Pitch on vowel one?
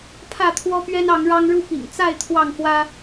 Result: falling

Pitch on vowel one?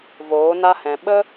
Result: rising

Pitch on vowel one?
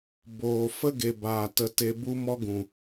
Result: low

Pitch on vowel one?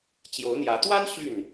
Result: rising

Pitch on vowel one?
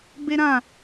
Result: high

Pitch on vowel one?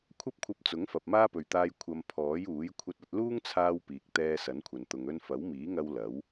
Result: high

